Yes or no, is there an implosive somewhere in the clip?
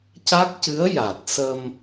no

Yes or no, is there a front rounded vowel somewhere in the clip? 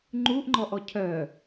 yes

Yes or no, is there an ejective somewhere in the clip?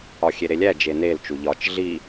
no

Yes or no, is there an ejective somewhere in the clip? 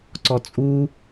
yes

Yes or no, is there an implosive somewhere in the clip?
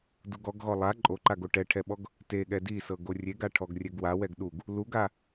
yes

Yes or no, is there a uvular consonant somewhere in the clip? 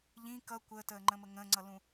no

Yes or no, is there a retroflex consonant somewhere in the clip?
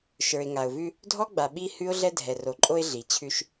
no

